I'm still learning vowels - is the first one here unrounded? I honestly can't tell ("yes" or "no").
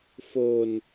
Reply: no